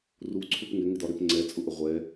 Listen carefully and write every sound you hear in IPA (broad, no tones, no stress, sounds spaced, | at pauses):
r u ǀʰ u p ŋ ɪ ŋ ɪ d ɒ ɾ ɪ p ŋ͡ǀ ɛ t͡sʼ ʊ ʔ ə ʁʷ ɛ